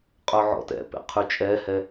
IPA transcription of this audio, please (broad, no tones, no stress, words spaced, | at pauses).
qʼœʕɔ̰tɛ̰pḛ qʰyt͡ʃʼɛhɛ